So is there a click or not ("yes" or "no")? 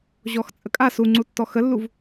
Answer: yes